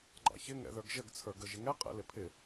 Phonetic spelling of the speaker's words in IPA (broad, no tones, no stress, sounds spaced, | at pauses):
ɡ͡ǃ ɑ̰ ç ɪ ŋ ɛ̰ ð ə˞ ɡ ʒ ə ɡ t͡sʰ ə˞ ɡ ə ʒ ɪ ŋ ɛ qʼ ɛ̰ l ɪ pʰ ɪ